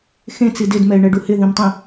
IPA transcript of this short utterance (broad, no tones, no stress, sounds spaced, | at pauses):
x ẽ t͡s i d ɪ d m ɛ ɪ̯ ɳ ɛ ɖ u h ɪ ð ĩ m tˤ ĩ